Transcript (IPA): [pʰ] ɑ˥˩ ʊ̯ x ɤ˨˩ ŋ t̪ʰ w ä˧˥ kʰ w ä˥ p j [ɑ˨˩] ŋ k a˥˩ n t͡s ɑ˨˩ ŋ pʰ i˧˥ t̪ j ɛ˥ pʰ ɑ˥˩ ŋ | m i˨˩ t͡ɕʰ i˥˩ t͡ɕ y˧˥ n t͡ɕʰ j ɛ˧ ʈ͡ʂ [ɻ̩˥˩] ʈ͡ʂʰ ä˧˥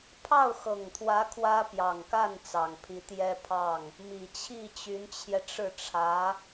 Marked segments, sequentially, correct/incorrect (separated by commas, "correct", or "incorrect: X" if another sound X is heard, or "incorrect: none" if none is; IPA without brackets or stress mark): correct, correct, correct